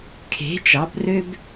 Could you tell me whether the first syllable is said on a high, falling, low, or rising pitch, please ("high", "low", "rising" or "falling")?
rising